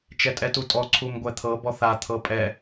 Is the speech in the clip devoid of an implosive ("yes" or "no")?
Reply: yes